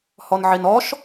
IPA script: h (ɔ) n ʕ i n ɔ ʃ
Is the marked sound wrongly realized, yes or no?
no